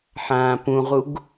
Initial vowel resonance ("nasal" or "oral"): nasal